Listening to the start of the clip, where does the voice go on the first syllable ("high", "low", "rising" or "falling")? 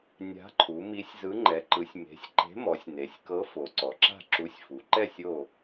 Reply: rising